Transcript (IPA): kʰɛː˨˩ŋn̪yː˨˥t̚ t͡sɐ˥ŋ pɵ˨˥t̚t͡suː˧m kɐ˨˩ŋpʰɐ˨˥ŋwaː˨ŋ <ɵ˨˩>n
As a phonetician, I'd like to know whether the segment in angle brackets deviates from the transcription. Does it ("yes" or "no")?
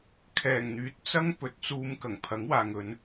yes